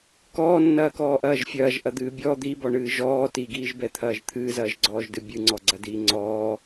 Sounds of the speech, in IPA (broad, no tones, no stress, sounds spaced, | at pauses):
k ɔː nː ɐː k ɔː ʔ ɐː ʒ fʲ ɐː ʒ ʔ ɐ d̪ ɨː bʲ ɔ d̪ i b ɔ ɳ ɨː ʒ ɔː t i ɡ iː ʒ b ɛ t̪ʰ ɐː ʒ t̪ʰ ɨː z ɐː ʒ ɡ͡ǀ ɔː ʒ d ɨ bʲ ɨ ŋ͡ǀ ɔ ɡ͡ǀ ɐ d iː ŋ͡ǀ ɔː